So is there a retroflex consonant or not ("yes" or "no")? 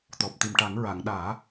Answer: yes